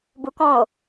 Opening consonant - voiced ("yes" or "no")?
yes